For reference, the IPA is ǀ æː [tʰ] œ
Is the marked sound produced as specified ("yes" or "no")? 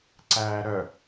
no